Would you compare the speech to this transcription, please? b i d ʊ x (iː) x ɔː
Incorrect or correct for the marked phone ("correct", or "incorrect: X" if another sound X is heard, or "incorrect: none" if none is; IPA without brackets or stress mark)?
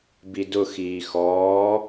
correct